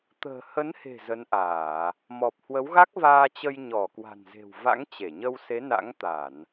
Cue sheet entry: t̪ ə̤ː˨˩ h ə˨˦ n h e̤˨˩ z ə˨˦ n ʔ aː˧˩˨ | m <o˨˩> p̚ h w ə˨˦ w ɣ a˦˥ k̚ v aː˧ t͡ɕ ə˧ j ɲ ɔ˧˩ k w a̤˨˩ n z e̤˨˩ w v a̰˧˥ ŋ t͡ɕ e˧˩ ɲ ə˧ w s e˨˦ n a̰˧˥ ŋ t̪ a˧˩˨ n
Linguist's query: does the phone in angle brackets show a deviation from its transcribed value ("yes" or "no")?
yes